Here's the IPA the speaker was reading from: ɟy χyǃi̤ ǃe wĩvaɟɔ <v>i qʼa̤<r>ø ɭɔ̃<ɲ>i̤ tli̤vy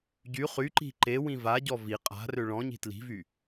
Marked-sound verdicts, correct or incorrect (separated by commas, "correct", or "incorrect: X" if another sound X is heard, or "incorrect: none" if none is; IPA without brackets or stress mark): correct, correct, correct